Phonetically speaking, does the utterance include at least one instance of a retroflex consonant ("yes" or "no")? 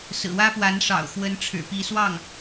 yes